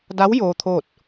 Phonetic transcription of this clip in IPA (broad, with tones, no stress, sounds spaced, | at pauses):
d a˧˥ w j oː˧˥ t̪ʰ oː˥˨ t̚